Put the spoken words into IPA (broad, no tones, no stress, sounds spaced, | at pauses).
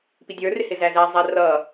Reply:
p i dʲ ə˞ r ɪ h ɪ z æ z æ zˤ æ r ʌː